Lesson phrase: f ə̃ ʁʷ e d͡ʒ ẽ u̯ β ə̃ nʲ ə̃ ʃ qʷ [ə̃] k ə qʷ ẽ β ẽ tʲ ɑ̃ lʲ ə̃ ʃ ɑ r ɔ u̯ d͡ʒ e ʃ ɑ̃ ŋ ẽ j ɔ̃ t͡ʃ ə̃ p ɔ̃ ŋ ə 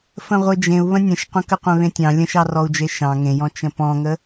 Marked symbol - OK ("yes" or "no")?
yes